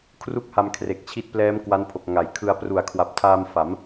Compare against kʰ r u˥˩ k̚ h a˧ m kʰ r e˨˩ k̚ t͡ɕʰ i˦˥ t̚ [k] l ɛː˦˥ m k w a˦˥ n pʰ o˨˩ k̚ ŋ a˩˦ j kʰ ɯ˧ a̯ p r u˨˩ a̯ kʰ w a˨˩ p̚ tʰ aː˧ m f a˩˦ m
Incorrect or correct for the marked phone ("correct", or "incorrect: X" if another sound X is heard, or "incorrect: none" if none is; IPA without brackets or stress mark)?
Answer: incorrect: p